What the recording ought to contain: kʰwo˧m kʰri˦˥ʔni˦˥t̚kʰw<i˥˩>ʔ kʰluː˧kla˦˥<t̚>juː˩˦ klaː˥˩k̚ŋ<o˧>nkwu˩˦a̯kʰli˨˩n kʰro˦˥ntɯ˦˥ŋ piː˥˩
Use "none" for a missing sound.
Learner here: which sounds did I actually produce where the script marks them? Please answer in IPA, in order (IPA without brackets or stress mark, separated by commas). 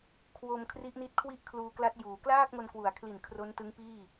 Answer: i˥˩, t̚, o˧